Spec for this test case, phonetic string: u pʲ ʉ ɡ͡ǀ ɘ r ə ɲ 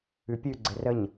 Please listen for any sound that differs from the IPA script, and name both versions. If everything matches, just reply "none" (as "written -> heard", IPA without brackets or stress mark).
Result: u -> ʉ